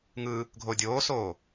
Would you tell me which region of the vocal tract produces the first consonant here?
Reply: velum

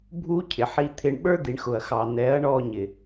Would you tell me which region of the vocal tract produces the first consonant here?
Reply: lips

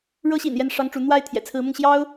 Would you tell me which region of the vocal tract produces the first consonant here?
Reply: retroflex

